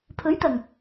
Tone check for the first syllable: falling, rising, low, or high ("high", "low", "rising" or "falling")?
rising